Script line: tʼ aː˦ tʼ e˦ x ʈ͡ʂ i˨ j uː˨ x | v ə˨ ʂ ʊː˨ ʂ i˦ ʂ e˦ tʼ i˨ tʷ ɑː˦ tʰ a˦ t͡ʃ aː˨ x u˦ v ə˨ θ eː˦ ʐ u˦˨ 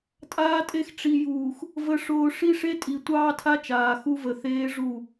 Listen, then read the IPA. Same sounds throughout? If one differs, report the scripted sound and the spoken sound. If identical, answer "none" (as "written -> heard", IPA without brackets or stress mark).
none